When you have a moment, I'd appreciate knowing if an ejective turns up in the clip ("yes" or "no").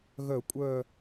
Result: yes